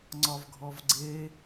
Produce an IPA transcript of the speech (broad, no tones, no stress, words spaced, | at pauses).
ŋ͡ǀɒvɡʱɔvɡ͡ǀe